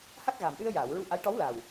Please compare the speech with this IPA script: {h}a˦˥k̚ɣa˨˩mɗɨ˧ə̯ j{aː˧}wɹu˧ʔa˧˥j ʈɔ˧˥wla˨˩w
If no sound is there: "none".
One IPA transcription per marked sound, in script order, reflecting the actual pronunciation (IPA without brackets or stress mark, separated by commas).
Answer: h, aː˨˩˨